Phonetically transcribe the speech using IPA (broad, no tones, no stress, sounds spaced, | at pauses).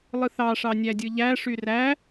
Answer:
lˠ ɯ θ ɑ ʂ ɑ nʲ æ dʲ ɯ ʎ æ ʂ y r æ